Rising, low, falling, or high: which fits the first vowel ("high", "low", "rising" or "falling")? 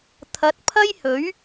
rising